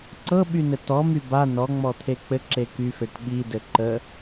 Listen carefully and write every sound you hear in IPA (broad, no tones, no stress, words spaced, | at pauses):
ǀɤɓynɘ tɔmy ba nɔ ŋ͡mɔt̪ʰek͡pɘ ǁekyfeʈ ɓi dɘǃə